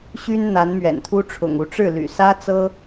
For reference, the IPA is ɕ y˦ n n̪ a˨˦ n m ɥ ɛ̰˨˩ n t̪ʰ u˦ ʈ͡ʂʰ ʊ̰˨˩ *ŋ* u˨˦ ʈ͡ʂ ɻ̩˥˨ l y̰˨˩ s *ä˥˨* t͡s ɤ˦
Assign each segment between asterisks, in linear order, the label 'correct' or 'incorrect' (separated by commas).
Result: correct, incorrect